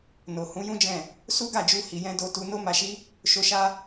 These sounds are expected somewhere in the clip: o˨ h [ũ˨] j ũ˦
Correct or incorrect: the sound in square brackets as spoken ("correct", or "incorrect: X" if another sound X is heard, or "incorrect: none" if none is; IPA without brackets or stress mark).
incorrect: ũ˨˦